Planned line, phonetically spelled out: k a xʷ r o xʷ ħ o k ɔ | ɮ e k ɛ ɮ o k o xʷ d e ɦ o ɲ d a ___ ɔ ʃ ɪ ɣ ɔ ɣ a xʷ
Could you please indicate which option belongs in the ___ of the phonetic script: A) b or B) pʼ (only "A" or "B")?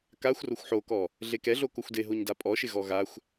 B